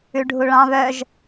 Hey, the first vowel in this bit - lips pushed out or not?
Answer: yes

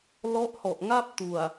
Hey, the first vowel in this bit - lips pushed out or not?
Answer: yes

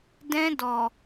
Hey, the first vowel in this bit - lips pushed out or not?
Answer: no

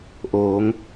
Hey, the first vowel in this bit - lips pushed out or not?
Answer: yes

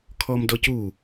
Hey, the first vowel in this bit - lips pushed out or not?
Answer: yes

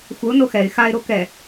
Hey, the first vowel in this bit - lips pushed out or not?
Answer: no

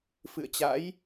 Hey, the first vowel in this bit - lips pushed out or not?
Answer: no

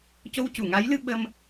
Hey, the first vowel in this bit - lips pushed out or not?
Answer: yes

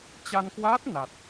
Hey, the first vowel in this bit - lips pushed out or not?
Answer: no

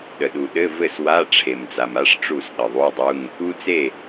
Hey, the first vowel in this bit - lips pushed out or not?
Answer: no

